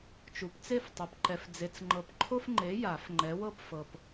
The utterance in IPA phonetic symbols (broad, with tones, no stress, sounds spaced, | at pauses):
t͡ʃ u˨ p t͡s e˥˨ f tˤ ɛ˨ p ǃ ɛ˨ f d͡z e˨ t͡s ŋ͡ǃ ɤ˨ p ǃʰ o˦ f ŋ͡ǃ e˨˦ j a˨˩˦ f ŋ͡ǃ ɛ˨˦ w ɤ˥˨ p f ɤ˨ p